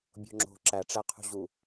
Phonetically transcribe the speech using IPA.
bʲo̤ŋ͡ǁo̤ ǁæʈ͡ʂæqʰṳʑu

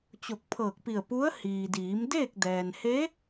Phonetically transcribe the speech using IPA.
t͡ɕo˧˩k̚pʰɤː˧˩k̚pi˧˩ə̯pu˧˥ə̯ hiː˩diː˩˧mdeː˥˨k̚ dɛː˩nhe˧˥

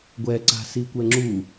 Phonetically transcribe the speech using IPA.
ɡʷɛǀa̤sikʷɛ ŋ͡ǁu

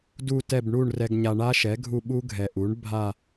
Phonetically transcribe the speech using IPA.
du˦˨tɛ˦˨b ɳu˦˨ɳ rɛ˨ɡɲa˨ɳa˦˥ʃɛ˩˥ ɡʱu˦˨ɓu˦˥ ɡʱɛ˨ʔu˩˥ɳ bʱa˦˨

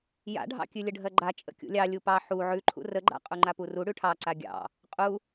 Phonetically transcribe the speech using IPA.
ja̰ɖʱɑ̰kʲʉ lʲəɖʱɜɡ͡ǃa t͡ʃʼə̰kʲṵlʲɑ lʲupɑ ħu ʕʉ ǃʰṵrəɡ͡ǃa̰ qʼuŋ͡ǃapuru ɽʉʈʰɑ ǀaɡʲɑ̰ | qʼu

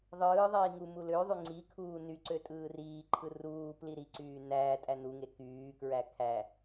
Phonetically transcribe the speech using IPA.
ðˤɯːðˤiː ŋumuløðˤy ŋ͡ǀikʰuː nyǀø tʼɯːriːǃʰɯ ruː pliɾiǀyː næː tʼænuŋe kyːkɹæ kʰæ

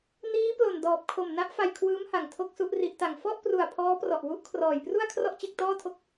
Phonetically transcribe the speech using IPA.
niː˦˥ plo˨˩n dɔː˨˩p̚kʰo˨˩m na˦˥ʔfa˧jkʰwɯː˦˥mha˨˩ŋ tʰo˥˩k̚su˥˩ʔri˦˥ʔta˧ŋ fɔ˥˩ʔpru˨˩a̯ pʰɔː˦˥prɔ˨˩ʔ wu˦˥ʔkʰrɔː˨˩jpru˥˩a̯ kʰrɔ˥˩ʔt͡ɕe˥˩k̚tɔː˥˩tʰo˥˩k̚

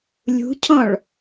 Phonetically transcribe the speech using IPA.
lʲṳcʰɔ̃ɭ

